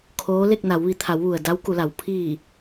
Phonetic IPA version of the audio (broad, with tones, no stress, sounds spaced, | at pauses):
kʰ oː˧˥ l e˥˨ k̚ n a˩˧ w ʋ i˩˧ t̪ʰ a˩˧ w ʋ u˩ ə̯ d a˧˥ w k u˩˧ l a˩ w pʰ i˧˩